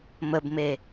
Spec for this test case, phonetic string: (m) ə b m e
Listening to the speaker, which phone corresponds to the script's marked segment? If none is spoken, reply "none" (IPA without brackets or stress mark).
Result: m